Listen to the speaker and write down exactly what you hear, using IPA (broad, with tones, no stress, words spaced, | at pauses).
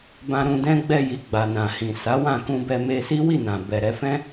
bã˧ɾũ˧dɛ̃˦ ɡ͡bɛ˧ji˨ ɡ͡ba˨nã˨hĩ˨ sa˨˦wã˦˨ kũ˧bɛ˧ me˧si˦wi˦˨nã˨ bɛ˨ɾɛ˧ fɛ̃˦